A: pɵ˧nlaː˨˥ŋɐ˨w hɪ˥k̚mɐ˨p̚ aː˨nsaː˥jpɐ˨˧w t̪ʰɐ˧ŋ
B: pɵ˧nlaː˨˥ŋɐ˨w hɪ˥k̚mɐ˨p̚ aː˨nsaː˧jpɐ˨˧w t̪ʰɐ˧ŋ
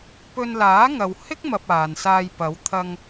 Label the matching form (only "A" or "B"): B